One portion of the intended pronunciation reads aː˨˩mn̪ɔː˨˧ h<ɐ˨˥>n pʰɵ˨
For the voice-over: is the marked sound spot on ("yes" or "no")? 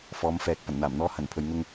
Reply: no